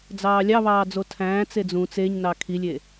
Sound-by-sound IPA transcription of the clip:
d͡z ɑː lʲ ɑ β ɑː d͡z o tʰ æ̃ː t͡s e d͡z ũ t͡s e ɲ n ɑ kʰ i lʲ e

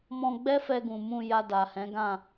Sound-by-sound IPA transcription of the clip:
m ɔ̃˧ ɡ͡b ɛ˦ f ɛ˧ ɡ ũ˨ m ũ˧ j a˧ d a˨ h ɛ̃˨˦ ɡ ã˦˨

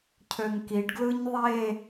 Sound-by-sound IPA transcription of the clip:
cʰ ø ŋ k i ɖ ɡ l ɯ ɲ ðˤ e

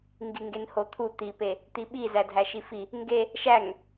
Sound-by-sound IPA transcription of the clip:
ŋ ɡ i ŋ ɡ e n h o t̪ʰ u t̪ i p e | t̪ i ɓ i z æ dʱ æ ʃ i f i | ŋ ɡ e | ʃ æ ŋ

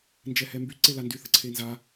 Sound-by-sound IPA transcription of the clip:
n d͡ʒ ɛ h ɛ m b y ǀ e l a n d y θ ə ǀʰ e n z a

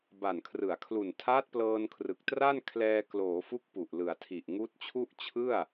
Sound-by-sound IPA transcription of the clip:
b a˨˩ n kʰ r ɯ˩˦ a̯ kʰ l u˨˩ n tʰ aː˦˥ t̚ p l ɤː˧ n kʰ r ɯ˨˩ k̚ t r a˥˩ n kʰ l ɛː˧ k l oː˩˦ f u˦˥ k̚ p u˨˩ ʔ l ɯ˩˦ a̯ tʰ i˨˩ ʔ ŋ uː˦˥ t̚ t͡ɕʰ u˥˩ ʔ t͡ɕʰ ɯ˥˩ a̯

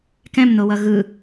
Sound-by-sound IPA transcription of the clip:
k ɛ̃ m n o w ʌ ɣ ɯ

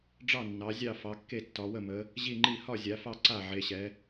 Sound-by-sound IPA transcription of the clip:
ɖ͡ʐ ɑ˥˨ nː ɑ˨˦ zʲ ɑ˥˨ f ɑ˨˦ kː e˥˨ tː ɒ˨˦ w ə˥˨ m ə˨˦ | ʑ i˥˨ ŋ͡ǃ i˥˨ h ɒ˥˨ zʲ a˨˦ f ɑ˥˨ ǀ a˥˨ ʕ e˨˦ ɕ ɛ˨˦

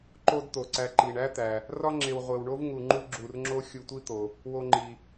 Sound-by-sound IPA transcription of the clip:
ǃ o˦ d t̪ o˩ ǀ æ˨ ǃ i˩ ɳ æ˥ t̪ æ˩ | r ɒ˥ ŋ͡ǁ e˨ w ʁʷ e˨ w ɳ o˥ v ŋ u˨ ŋ͡ǃ u˦ ɡ͡ǁ u˨ r ŋ͡ǁ o˥ xʲ u˨ tʷ i˦ t̪ o˩ | w o˦ ŋ͡ǃ i˨

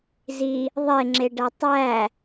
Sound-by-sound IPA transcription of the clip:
z i | ðˤ e ŋ͡ǁ e ɖ æ tˤ æ

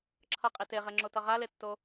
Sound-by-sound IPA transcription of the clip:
ǁʰ ʌ qʼ i t e ʁ ɛ ŋ͡ǁ o t ʌ ʁ a l e tː o

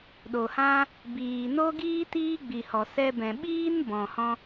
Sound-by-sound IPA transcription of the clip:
ɗ o˨ h ã˦ | b iː˨ n o˦ ɡ iː˦ t iː˦ ɡ͡b i˨ h ɔ˨ s ɛ˧ b ɛ̃˨ ɓ iː˦ n b ɔ̃˨ h ɔ̃˦

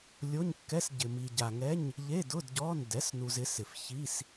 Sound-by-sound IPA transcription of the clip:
lʲ o˧˥˧ ɲ kː ɛ˧˥˧ s ɟ ɪ˨ m i˨ ɟ a˨ ŋ ɛ˧˥˧ ɲ | ʎ e˧˥˧ d ʊ˧˥˧ d ɟ ɔ˧˥˧ n d ɛ˩˥ s n u˨ z ɪ˩˥ s ɪ˨ f ç i˧˥˧ s

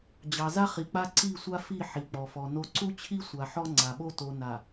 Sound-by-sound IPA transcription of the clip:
d͡ʑ ɑ˨ z a˦ χ i˨ k͡p a˦ ǀ i˦˨ sʷ a˦ f i˦˨ ħ i˨ k͡p ɔ˨ f ɔ˨ n o˨ ǀ u˦ t͡ɕʰ i˦ sʷ a˨ ħ ɔ˦ ŋ͡ǀ a˨ ɓ o˦ t o˨ n a˨

